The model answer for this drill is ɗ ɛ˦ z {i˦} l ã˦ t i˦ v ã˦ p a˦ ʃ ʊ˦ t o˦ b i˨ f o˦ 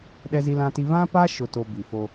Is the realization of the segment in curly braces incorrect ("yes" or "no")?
no